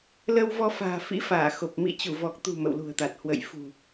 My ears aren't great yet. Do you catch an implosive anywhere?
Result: no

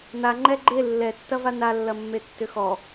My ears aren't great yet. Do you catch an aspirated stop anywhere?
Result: no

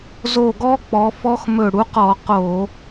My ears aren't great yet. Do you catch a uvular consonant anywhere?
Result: yes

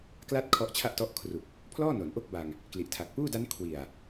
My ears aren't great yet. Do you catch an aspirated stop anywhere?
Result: yes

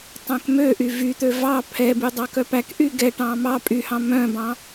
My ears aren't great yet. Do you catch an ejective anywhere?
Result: yes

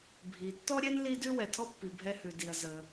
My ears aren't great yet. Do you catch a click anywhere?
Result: no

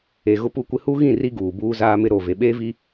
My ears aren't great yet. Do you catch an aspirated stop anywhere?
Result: no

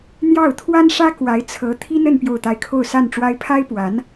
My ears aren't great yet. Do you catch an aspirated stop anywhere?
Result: yes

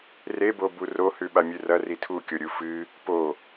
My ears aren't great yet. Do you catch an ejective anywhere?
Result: no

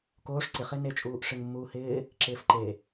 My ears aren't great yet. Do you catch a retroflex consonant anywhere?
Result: yes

